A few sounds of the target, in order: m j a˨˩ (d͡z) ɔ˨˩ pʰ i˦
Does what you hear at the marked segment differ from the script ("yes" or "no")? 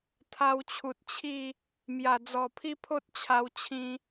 no